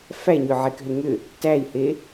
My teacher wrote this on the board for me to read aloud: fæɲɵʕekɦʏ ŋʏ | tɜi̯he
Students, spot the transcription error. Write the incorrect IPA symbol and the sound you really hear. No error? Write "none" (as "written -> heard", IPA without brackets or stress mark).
ɜ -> æ